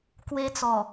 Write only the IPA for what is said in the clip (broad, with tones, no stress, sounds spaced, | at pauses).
k w e˧ t͡s ɔ˨˩